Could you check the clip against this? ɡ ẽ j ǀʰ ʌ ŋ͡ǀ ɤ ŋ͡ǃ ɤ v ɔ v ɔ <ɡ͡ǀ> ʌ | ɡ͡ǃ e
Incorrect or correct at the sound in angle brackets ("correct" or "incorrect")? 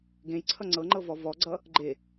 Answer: correct